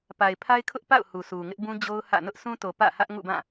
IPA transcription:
pa˨ɪ̯pʰa˦ɪ̯kʰʊ˦ʔpa̰˦˨ʊ̯ hu˨su˨ ŋɪ˦ʔbũ˦ d͡ʑo˦ʊ̯hä̰˦˨ nʊ˦ʔsũ˦to˨ pä̰˦˨hä˦ʔ ŋṵ˦˨bã˦˨

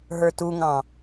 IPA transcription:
ɦə˞tuŋɑ̃

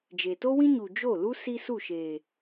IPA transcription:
d͡ʒe˨to˦wĩ˦ɲu˨ d͡ʒo˦˨ lu˦ si˦su˦˨ ʃeː˨

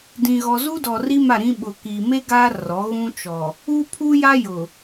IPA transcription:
dĩ˨ɣɔ˨ zu˦dɔ˨ri˦ ma˦˨ɾĩ˦ɓʊ˨kiː˨ me˦ ɡaː˦ rɔ˨˦ ɣũ˦t͡ʃɔ˨ | u˦pʰu˦ja˦ jʊ˨

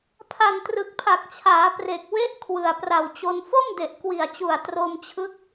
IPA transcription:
pʰa˨˩ntrɯ˨˩k̚pʰa˨˩k̚t͡ɕʰaː˩˦ pre˨˩k̚we˦˥ʔ kʰwɯ˨˩a̯pra˨˩wt͡ɕo˧n fo˥˩mde˨˩ʔkwi˨˩a̯t͡ɕu˨˩a̯ tro˧mt͡ɕʰɯ˦˥k̚

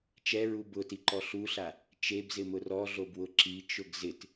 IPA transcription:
t͡ʃɛɹu bʊtiǃɔ ɬuɬa | t͡ʃebzɪmʊ rɔɮobwʊ ǁit͡ʃʊɡ zɪt

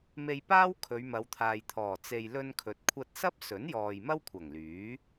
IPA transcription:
me˧jpaː˥w kʰɵ˨˧ɥmɐ˨˧wt̪ʰaː˨jt̪ʰɔː˨˩ t͡se˧j lɵ˧nkʰɵ˨˥t̚kʷʰɐ˧t̚sɐ˥p̚ sɵ˨˥njɔː˨j mɐ˥wkʷʰɐ˨˩ŋlyː˨˥

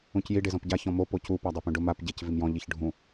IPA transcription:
ũcji ɖezɔ̃pɟa çɔ̃mo pocu padˤepũɖʊ map ɟec vimjɔ̃ ʎiçɖʱũ

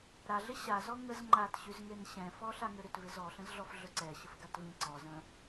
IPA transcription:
ɾaɮɪ ɕazɔ ŋəz ŋ͡ǃatɕyzŋen ɕɛ̃fɔ ɬaŋʏɾʏt vɪzɔ ɬə̃zɮɔfɮɵǀɛ ɕəfɡatvĩ ǀɔzə̃

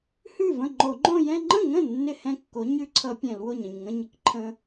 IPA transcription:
hʉ˥˩və̃˥˩ŋ͡ǃo˧˩˧ŋ͡ǃõ˥˧ jɛ̃˥˧ ŋ͡ǃə̃˥˩ŋə̃˥˩ nːɪ˥˩hɛ̃˥˩kːo˩˥ ɲʉ˦˥ǀʰʌ˧˩˧ pʲɛ̃˧˩˧lwo˥˩ɲ ə̃˥˩ɲŋə̃˥˧ɲɪ˩˥kǃʰə̃˦˥

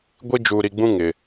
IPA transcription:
ɡʷi˦d͡ʒuː˨ɾi˨ɡ͡bũ˦ ŋɪ˨

